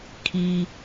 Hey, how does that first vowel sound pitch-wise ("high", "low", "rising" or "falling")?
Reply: high